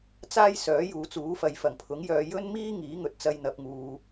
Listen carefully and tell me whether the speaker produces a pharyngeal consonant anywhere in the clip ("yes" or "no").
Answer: no